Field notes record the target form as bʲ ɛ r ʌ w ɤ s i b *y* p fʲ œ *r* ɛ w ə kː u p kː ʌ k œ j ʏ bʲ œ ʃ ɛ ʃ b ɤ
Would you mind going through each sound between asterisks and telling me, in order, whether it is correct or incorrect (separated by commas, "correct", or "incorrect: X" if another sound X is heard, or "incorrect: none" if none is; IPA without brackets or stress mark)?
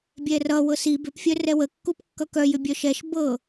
incorrect: ʏ, correct